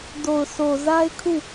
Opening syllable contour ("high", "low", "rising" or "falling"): low